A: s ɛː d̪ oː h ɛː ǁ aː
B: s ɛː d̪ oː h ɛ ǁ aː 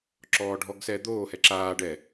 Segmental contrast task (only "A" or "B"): B